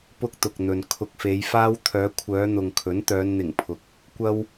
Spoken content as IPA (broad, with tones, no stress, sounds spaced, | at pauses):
p ʊ˥ k̚ t̪ ʊ˨ k̚ n̪ ɵ˨ n kʰ ʊ˧ k̚ f e˨˧ j f aː˥ w t̪ʰ œː˨˧ kʷʰ œː˨˧ n̪ ʊ˨ ŋ kʰ ɵ˨˥ n t̪ œː˨˧ n n̪ ɪ˨˩ ŋ pʰ ʊ˨ k̚ | kʷ ɐ˥ w